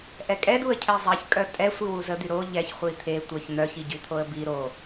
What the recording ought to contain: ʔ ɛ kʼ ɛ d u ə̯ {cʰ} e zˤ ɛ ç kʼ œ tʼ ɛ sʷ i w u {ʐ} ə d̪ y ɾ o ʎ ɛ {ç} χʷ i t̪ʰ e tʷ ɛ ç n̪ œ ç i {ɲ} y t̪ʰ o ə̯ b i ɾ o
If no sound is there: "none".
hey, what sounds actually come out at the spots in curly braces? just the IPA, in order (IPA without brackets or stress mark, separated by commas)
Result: cʰ, z, ç, ɟ